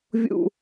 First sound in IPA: vʲ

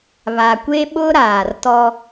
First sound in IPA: β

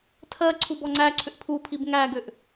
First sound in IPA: tʰ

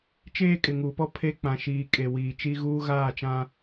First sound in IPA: t͡ʃ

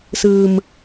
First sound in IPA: s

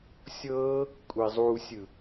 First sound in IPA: sʲ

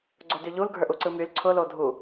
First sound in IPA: ɡ͡ǀ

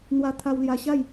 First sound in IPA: n̪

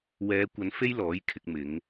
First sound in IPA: w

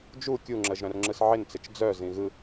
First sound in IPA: d͡ʒ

